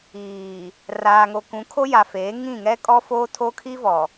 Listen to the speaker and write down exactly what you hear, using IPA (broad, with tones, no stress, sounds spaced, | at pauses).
iː˨ | r aː˨ ŋ o˨ k ũ˨˦ kʰ o˦ j a˨ f eː˨˦ ŋ ĩ˦˨ ŋ ɛ˦ kʼ ɔ˦ f oː˦ tʰ o˦ kʰ i˦ v ɔ˨